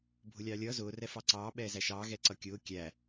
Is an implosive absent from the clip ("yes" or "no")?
no